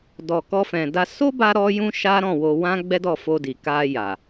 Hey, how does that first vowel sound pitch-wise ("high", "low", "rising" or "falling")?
low